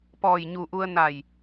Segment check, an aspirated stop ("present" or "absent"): absent